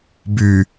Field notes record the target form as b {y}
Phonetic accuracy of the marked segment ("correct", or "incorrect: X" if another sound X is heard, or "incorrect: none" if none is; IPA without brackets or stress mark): correct